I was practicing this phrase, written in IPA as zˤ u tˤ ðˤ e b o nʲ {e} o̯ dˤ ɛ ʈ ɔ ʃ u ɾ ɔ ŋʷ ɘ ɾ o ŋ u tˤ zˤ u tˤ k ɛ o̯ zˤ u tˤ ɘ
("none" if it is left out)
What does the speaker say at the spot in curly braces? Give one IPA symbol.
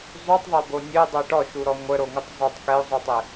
ɘ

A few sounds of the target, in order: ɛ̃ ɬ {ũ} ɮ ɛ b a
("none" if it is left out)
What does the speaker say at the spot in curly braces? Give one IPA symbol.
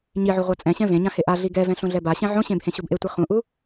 õ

